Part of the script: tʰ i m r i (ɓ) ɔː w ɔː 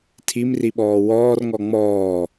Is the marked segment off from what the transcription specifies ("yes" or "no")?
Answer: no